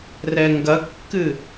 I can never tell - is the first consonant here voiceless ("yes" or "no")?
no